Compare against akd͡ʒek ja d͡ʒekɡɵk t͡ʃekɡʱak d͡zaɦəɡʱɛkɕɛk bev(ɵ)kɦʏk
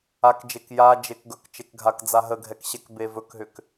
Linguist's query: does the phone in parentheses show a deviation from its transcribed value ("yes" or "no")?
no